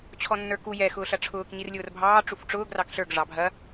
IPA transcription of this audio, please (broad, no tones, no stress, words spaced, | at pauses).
t͡ɕʰɔnːə˞ku jɛ xʊːɬɐʈ͡ʂʰʊːk ɲirlʲʊːrbʱɑː ʈ͡ʂufʈ͡ʂʊːɡ rɑkɬə˞ɡ ʐɑbʱɐ